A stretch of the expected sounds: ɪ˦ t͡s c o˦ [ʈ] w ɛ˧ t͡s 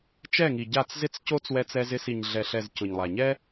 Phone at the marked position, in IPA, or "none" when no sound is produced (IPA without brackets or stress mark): t͡s